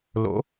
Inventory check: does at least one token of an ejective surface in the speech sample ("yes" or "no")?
no